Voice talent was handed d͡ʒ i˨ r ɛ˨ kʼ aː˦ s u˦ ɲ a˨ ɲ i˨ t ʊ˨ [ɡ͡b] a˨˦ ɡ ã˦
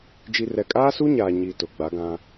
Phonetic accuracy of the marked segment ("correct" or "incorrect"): correct